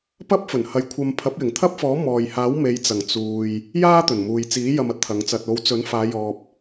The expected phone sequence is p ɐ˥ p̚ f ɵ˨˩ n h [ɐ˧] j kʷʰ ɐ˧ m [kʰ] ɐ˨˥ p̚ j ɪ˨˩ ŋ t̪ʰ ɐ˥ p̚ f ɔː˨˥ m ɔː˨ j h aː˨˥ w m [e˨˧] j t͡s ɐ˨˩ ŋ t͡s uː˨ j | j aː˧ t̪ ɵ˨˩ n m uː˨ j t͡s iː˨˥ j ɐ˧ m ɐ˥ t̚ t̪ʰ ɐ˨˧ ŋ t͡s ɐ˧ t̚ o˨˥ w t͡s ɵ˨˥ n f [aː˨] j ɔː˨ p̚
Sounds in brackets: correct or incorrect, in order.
correct, incorrect: pʰ, correct, incorrect: aː˨˧

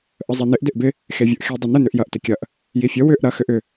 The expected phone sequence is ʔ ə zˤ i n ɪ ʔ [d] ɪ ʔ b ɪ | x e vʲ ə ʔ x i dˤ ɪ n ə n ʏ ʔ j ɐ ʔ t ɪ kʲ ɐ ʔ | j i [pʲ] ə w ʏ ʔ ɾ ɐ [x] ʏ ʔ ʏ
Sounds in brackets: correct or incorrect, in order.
correct, incorrect: fʲ, correct

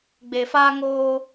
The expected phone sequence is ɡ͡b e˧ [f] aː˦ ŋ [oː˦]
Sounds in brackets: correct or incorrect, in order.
correct, correct

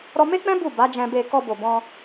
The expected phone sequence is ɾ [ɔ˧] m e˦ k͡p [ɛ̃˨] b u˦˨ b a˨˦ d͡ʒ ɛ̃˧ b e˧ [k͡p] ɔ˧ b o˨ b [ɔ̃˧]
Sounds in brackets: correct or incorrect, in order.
correct, incorrect: ɛ̃˦, incorrect: k, correct

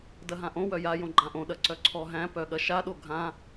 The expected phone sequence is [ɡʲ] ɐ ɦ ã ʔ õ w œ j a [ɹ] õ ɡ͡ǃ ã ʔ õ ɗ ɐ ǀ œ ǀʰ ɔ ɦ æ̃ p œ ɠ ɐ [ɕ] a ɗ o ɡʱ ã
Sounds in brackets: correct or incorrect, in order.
incorrect: d, incorrect: j, incorrect: ʃ

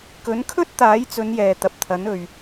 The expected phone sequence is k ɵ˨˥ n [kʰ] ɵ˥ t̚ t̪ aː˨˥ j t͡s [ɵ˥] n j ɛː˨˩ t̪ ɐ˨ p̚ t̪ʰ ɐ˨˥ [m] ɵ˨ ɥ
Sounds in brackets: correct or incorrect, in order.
correct, incorrect: ɵ˨˧, incorrect: n

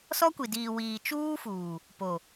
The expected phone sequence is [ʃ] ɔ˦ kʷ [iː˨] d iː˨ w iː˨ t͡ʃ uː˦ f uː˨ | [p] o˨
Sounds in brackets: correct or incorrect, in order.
incorrect: s, incorrect: i˨, correct

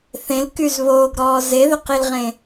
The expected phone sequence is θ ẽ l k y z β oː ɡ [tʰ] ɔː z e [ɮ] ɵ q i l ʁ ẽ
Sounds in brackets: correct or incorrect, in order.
incorrect: ɾ, incorrect: ð

